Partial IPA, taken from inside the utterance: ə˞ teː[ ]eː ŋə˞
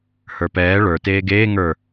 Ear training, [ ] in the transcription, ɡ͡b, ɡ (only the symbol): ɡ